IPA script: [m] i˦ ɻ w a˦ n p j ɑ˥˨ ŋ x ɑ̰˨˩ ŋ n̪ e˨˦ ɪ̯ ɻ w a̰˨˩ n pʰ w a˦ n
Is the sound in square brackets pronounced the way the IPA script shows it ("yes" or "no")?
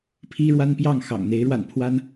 no